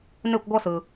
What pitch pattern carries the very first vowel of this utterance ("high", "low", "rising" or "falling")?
falling